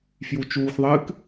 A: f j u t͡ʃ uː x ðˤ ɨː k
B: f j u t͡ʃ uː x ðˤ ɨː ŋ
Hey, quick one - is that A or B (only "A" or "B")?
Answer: A